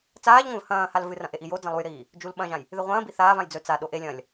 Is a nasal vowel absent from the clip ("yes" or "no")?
no